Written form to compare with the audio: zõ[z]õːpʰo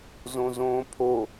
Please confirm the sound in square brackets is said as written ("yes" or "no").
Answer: yes